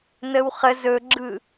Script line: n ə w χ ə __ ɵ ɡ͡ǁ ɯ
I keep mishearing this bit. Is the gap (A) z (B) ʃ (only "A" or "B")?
A